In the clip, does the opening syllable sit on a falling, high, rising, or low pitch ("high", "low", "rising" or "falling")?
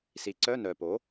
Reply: rising